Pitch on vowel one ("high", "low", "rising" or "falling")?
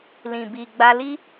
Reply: low